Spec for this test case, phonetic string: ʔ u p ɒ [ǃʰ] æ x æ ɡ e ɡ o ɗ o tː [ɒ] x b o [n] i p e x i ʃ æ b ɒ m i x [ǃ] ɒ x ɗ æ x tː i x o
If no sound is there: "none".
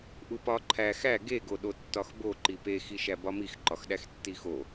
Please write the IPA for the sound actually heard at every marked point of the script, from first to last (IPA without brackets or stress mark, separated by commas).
ǃʰ, ɒ, ǃ, ǃ